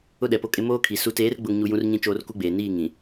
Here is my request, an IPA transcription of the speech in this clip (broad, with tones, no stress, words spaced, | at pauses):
ʊ˦ɗɛ˨po˦kʼɪ˦ moː˦kʰi˨ su˨teː˨˦rɡ͡bʊ˨ŋɲu˨ jũ˦rɲĩ˦ t͡ʃoː˦rku˦ɡ͡beː˨ niː˦˨ŋĩ˨